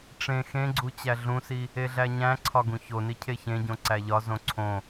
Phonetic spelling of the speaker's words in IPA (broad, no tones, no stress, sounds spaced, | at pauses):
ʈ͡ʂ ẽ x ẽ ɡ͡ǀ u t͡ɕ æ ɮ ũ s i | e ɮ æ ɲ æ̃ ǀʰ ɒ ɡ ũ ç o n i cʰ e ç ẽ ɟ õ ǀ æ ʎ ɒ z õ ǀʰ õ